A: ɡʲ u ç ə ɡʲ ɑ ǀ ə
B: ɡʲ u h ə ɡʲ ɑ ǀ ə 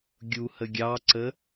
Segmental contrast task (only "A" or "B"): B